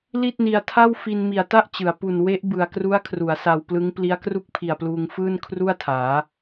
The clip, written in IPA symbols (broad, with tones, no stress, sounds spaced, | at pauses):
l i˥˩ t̚ n i˧ a̯ tʰ a˥˩ w f i˧ n m i˨˩ a̯ t a˥˩ ʔ t͡ɕ ɯ˩˦ a̯ p u˨˩ n w e˦˥ ʔ b ɯ˨˩ a̯ k r u˦˥ a̯ kʰ r u˩˦ a̯ s a˧ w p l ɯ˦˥ ŋ p l i˦˥ a̯ k r u˥˩ k̚ pʰ i˨˩ a̯ p l uː˧ ŋ f ɯː˥˩ n kʰ r u˥˩ a̯ tʰ aː˩˦